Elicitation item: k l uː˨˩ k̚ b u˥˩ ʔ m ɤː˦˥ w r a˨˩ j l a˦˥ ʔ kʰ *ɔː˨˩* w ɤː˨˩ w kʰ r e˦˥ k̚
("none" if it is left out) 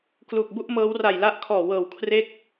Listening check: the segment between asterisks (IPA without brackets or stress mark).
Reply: ɔː˨˩